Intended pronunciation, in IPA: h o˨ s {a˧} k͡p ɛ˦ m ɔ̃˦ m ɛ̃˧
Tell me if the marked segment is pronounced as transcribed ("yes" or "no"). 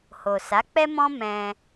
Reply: no